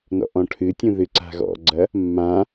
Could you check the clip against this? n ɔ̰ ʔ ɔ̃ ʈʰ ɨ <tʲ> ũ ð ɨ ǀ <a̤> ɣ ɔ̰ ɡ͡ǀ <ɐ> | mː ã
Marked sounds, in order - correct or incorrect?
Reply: correct, correct, correct

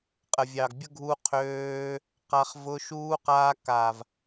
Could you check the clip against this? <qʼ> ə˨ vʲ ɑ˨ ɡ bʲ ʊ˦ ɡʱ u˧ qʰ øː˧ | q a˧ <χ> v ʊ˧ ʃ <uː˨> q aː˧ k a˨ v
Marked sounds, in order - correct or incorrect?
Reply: correct, correct, incorrect

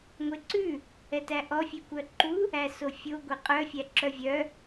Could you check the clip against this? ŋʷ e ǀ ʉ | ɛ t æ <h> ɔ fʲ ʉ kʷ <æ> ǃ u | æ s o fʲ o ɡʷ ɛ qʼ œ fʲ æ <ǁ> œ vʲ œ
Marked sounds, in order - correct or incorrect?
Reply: incorrect, incorrect, correct

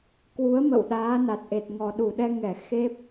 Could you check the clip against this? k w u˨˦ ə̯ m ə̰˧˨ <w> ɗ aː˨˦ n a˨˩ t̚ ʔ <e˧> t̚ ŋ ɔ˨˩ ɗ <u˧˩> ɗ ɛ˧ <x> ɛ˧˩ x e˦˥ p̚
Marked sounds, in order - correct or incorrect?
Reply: correct, incorrect, correct, incorrect

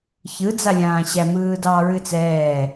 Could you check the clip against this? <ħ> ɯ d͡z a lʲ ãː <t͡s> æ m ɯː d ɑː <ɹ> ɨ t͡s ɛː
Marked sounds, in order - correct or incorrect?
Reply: incorrect, incorrect, correct

